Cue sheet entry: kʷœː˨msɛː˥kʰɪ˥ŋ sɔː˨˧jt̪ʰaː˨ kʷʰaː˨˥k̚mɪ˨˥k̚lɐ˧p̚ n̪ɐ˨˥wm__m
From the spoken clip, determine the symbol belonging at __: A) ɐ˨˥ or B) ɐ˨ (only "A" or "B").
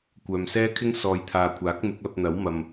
B